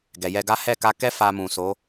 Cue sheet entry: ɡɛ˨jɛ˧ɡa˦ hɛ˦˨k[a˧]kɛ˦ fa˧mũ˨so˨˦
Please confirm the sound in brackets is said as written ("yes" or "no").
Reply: yes